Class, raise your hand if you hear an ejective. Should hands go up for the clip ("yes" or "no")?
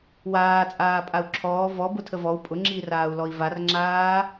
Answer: yes